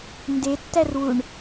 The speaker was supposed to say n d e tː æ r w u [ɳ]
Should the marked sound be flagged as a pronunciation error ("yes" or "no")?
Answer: no